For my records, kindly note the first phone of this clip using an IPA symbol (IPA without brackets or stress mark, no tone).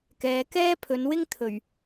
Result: k